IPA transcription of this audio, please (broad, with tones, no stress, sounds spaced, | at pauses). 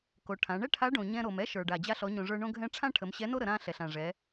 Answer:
k o˩˧ ʈʰ ã˩˧ ɳ ɛ˥ ʈʰ a˧˥ ɖ õ˩ ɲ ɛ̃˧ ɾ o˩ m ɛ˧˥ ʃ ə˞˩ ɖ a˩ d͡ʑ a˧ ɬ ɔ˩˧ ɲ õ˩ ʐ ə˞˧ ɳ õ˥ ɡʱ ɛ̃˥ ʈ͡ʂʰ ã˥ ʈʰ ə˩˧ m ɕ ɛ˧˥ n o˥ ɾ ə˩˧ ɾ ã˥ ɬ ɛ˩ ɬ ã˩ ʐ ɛ˩˧